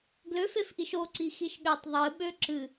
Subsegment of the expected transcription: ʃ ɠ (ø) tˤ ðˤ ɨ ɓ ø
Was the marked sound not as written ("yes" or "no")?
no